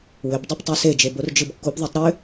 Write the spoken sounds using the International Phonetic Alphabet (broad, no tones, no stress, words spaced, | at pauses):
wʏbdˤɯp tˤosed͡ʒe bord͡ʒɯbkːubðˤetˤ ɾʏ